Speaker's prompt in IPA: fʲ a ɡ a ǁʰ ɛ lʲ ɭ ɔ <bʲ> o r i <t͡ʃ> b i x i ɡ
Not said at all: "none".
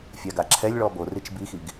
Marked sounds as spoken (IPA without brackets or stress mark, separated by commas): b, t͡ʃ